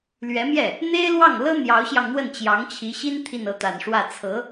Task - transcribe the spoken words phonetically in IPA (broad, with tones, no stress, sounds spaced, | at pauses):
l ɥ ɛ˧˥ m j ɛ˥˩ | n̪ e˥ ɪ̯ l w ɑ˥˩ ŋ l ɤ˥ n̪ j ɑ˧˥ ʊ̯ ɕ j ɑ˧ ŋ n̪ w ə˥˩ n t͡ɕ j ɑ˧˥ ŋ t͡ɕʰ i˧˥ ɕ i˥ n t̪ʰ i˥˧ n ɤ˥˩ t̪ a˨˩ n ʂ w ä˥˩ t͡sʰ ɤ˧˥